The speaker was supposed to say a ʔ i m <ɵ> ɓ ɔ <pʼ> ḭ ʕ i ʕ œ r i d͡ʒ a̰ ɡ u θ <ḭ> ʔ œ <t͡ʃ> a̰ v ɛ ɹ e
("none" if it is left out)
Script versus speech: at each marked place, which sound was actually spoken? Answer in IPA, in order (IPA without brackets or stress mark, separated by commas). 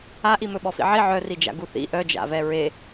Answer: ɵ, f, ḭ, d͡ʒ